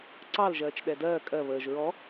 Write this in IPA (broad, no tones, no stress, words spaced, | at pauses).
ǀɑlʒɜːt͡ʃ ɗɛdɜː kʼɜ βəːʒ ɹɔ